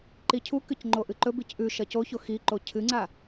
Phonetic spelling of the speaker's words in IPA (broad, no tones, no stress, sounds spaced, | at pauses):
ǃ i cʰ u k ɨ c ŋ͡ǃ o ʔ ɨ ǃ ɵ b i c ʔ ʉ ʃ ɐ c o ç o x i ǃ o cʰ ɨ ŋ͡ǀ a